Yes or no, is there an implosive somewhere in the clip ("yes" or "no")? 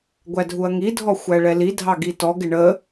no